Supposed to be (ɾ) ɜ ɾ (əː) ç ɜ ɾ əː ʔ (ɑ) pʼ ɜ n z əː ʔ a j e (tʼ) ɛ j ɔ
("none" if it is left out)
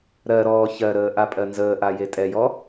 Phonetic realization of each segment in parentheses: ɾ, ɔː, a, tʼ

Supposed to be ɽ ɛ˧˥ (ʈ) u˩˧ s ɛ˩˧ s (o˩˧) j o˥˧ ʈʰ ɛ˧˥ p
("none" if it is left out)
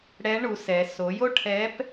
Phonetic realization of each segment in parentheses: ɳ, o˩˧

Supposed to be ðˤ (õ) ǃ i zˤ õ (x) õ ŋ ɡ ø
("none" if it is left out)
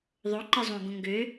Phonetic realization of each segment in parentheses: o, ɡ

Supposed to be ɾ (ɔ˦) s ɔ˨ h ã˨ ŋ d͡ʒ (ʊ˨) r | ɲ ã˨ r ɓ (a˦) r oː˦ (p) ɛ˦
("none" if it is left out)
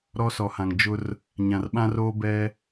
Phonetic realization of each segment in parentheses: ɔ˦, ʊ˦, ã˦, b

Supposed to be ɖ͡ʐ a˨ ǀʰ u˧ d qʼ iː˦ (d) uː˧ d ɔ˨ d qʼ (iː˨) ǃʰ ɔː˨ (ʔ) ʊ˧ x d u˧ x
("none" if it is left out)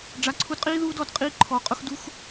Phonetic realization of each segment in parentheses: ð, iː˧, qʼ

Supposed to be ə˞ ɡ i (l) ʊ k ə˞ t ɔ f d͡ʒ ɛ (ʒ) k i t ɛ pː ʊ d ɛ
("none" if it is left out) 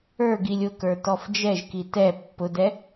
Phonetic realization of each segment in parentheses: lʲ, ʒ

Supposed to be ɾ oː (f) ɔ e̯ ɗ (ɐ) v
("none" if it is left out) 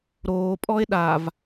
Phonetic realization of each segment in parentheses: pʼ, a

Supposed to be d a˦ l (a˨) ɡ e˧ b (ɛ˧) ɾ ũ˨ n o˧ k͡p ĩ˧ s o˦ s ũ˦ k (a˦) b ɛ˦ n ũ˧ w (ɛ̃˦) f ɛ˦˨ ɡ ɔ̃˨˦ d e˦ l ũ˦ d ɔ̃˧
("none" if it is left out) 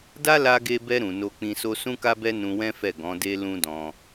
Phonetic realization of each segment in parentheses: a˧, ɛ˧, a˦, ɛ̃˦

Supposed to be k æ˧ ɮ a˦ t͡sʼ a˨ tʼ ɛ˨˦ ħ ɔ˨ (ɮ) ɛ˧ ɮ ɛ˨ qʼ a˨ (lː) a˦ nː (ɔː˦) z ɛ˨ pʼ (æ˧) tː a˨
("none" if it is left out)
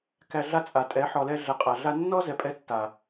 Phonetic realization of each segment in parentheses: l, ɮ, ɔ˦, ɛ˧

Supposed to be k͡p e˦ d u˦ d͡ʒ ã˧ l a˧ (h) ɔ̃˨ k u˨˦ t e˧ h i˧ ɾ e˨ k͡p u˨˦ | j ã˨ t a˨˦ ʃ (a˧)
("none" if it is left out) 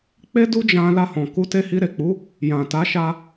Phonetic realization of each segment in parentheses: h, a˧

